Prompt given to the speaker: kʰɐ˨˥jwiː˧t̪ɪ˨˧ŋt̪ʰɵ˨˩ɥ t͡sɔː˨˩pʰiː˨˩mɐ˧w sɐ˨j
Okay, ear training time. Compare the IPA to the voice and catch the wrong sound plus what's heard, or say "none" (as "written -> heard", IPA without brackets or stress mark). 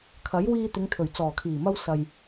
pʰ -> kʰ